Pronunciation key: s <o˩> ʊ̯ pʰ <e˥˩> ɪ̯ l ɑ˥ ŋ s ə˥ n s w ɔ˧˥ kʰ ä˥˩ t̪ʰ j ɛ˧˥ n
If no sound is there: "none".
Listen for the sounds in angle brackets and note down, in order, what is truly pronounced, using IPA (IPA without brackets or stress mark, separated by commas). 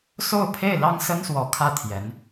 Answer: o˥˧, e˥˩